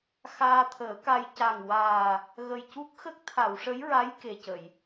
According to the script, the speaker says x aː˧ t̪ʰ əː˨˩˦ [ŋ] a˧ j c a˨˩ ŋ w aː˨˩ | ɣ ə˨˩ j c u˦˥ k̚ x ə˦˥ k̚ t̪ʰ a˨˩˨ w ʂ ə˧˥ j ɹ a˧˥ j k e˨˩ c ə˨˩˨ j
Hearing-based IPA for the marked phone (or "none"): k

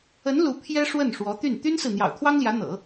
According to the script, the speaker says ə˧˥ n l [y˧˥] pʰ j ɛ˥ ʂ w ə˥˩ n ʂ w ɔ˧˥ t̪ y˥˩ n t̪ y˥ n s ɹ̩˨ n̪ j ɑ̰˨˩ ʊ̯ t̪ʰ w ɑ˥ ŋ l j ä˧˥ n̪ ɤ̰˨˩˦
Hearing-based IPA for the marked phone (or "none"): u˧˥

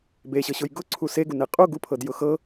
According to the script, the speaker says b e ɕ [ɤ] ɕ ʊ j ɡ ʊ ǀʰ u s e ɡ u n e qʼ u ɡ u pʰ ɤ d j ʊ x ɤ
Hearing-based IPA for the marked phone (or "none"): ɤ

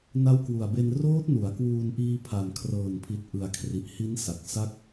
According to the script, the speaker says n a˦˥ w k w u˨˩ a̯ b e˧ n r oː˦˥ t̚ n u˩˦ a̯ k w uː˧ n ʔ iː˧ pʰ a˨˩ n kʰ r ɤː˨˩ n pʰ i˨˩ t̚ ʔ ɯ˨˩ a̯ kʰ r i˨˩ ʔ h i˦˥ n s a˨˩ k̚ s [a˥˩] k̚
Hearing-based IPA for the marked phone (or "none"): a˦˥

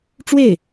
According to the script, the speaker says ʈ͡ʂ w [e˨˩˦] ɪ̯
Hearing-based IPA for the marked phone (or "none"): e˥˩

